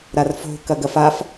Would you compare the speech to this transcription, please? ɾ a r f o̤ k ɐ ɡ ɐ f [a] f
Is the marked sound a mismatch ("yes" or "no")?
no